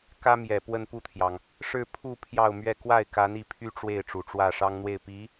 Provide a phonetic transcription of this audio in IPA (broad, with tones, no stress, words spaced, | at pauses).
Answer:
kä˥mjɛ˨˩ pwə˥˧npu˥˩t̪ʰjɑ˩ŋ | ʂɻ̩˥˧pʰu˥˧ pʰjɑ˥˧ʊ̯mɥɛ˥˧ kwa˥˩ɪ̯ka˧˥n i˧˥pʰy˥ ʈ͡ʂwe˥˩ɪ̯ ʈ͡ʂu˨˩ʈ͡ʂwä˥˩ ʂɑ˥ŋn̪we˥˩ɪ̯ pi˧˥